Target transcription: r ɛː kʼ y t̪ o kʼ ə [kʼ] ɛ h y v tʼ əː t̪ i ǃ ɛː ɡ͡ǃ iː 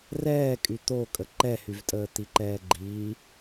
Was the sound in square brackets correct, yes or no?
no